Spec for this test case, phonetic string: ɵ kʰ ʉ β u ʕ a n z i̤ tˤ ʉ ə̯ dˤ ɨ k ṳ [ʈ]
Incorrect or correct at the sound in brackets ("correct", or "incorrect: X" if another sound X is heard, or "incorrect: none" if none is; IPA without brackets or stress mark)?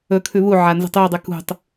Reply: incorrect: tˤ